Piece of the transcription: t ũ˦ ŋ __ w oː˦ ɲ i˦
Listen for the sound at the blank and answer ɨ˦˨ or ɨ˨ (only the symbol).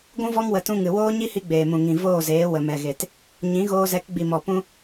ɨ˨